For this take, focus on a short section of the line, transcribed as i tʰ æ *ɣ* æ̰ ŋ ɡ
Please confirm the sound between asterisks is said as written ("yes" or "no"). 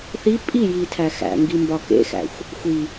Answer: no